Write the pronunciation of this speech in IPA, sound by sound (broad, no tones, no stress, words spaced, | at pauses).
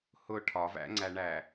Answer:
hʊ ʈʰɒvæ̰ŋ͡ǀæɳæ